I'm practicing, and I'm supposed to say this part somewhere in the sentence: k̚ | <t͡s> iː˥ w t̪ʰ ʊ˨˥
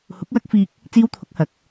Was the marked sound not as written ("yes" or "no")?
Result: no